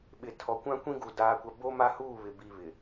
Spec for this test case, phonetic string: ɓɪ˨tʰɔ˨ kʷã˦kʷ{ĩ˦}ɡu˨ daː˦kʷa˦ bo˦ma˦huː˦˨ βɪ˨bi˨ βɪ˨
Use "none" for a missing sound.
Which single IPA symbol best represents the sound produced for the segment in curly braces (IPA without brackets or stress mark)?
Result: ĩ˦